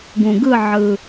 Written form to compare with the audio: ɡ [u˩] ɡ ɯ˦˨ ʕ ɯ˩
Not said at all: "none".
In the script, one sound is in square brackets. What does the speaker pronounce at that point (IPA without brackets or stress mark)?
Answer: ũ˩